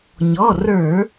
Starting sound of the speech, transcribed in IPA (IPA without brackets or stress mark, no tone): ɲ